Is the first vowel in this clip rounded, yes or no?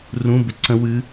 yes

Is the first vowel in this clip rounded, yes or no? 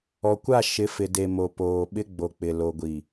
yes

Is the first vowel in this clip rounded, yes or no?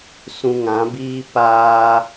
yes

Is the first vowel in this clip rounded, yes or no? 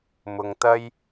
yes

